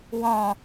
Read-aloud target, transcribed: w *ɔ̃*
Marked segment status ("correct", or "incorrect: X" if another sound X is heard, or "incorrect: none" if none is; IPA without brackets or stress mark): correct